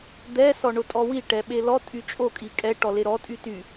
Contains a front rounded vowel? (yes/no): yes